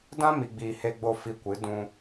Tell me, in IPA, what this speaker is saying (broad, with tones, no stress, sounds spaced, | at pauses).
d ã˦ m i˨ ɡ͡b iː˨ h e˧ ɡ͡b o˧ f i˧ kʷ ɨ˨˦ d ũ˧